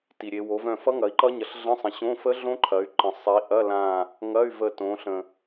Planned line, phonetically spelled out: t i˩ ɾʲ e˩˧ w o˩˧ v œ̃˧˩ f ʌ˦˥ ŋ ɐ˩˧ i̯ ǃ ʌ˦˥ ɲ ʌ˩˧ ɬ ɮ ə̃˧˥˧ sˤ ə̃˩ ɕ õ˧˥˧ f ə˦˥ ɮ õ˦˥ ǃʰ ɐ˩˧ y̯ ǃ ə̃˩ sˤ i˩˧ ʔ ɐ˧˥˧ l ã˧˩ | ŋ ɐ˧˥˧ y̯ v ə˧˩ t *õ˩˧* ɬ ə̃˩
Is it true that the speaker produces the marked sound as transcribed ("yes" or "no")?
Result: yes